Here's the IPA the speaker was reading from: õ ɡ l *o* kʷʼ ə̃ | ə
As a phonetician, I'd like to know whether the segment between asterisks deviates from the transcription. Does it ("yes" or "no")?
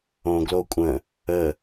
no